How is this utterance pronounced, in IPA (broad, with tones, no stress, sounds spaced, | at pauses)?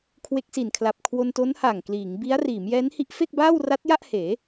kʰ w e˦˥ k̚ s i˨˩ n kʰ l a˨˩ p̚ kʰ w o˧ n t o˦˥ n h a˨˩ ŋ k l iː˩˦ ŋ b i˦˥ a̯ r iː˩˦ m j ɛː˦˥ n h i˦˥ ʔ f e˥˩ k̚ b aː˥˩ w r a˦˥ t̚ j a˥˩ ʔ h eː˩˦